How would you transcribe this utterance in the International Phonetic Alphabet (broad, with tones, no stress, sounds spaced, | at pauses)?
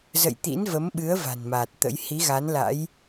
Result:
z ə̰˧˨ j t̪ ḭ˧˥ n v ə˨˦ m ɓ ɨ˨˦ ə̯ v a̤˨˩ n m aː˨˩ t̚ t̪ ə̰˧˥ j h i˨˦ ɣ a˨˦ n l a̰˧˥ j